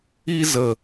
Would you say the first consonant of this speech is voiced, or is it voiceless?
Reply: voiced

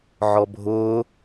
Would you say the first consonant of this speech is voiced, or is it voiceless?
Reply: voiced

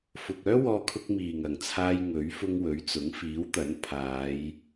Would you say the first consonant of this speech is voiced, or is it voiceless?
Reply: voiceless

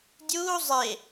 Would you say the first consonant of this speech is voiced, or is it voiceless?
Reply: voiced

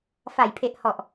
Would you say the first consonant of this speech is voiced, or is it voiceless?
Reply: voiceless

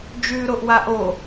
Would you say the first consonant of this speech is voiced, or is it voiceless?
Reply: voiced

